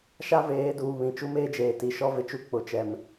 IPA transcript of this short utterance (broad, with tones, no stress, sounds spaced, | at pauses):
ʃ a˦ v eː˨˦ d uː˨ β ĩ˨ t͡ʃ u˦ m eː˦ d͡ʒ eː˨ t i˨˦ ʃ ɔ˦ v ɪ˨ t͡ʃ u˦ k͡p ʊ˨ t͡ʃ ɛ˨ m